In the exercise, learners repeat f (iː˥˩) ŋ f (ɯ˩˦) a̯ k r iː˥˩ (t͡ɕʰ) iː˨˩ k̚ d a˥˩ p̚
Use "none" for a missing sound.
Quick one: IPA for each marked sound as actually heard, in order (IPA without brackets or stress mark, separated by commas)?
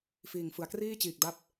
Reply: iː˨˩, ɯ˩˦, t͡ɕ